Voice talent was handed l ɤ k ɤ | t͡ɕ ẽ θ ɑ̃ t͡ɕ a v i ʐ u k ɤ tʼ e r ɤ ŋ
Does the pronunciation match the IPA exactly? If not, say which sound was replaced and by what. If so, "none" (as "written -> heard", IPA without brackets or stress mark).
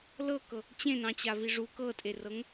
θ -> n